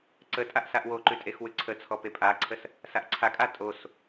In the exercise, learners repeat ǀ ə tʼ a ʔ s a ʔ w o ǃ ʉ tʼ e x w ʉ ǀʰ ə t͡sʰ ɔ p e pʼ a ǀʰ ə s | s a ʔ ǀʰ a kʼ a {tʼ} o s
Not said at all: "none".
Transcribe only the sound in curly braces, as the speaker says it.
tʼ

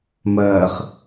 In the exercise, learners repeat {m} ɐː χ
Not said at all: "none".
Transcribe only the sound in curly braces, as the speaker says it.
m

